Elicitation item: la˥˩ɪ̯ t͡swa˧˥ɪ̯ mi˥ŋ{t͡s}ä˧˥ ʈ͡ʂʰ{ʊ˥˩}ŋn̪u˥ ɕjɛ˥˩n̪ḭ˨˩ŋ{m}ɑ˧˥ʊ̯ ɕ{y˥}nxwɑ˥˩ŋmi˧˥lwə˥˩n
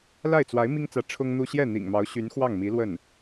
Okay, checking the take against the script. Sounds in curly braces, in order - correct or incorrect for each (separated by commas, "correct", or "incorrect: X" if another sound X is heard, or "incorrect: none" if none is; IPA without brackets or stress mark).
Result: correct, incorrect: ʊ˥, correct, incorrect: y˧˥